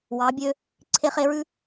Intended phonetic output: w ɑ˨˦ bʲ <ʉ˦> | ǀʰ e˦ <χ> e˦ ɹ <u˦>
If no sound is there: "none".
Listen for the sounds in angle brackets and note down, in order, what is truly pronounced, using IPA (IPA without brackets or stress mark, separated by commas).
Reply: ø˦, χ, ʉ˦